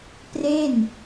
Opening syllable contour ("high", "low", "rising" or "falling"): falling